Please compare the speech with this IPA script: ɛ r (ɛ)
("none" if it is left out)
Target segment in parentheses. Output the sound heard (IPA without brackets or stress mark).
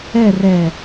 ɛ